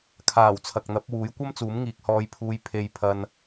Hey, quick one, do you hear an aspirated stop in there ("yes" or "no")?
yes